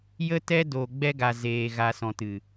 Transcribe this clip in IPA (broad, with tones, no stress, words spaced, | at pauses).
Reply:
jə˦tɛ˦ doː˨ɡ͡bɛ˧ɡa˨ zeː˨ ɣa˨sɔ̃˨ tɨ˨